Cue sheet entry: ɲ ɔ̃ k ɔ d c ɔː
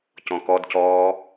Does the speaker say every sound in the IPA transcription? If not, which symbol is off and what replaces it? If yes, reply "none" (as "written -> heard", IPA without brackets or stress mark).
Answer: ɲ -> c